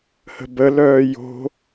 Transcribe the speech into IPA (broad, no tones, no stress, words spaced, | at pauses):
hə̤bə lœːjo̤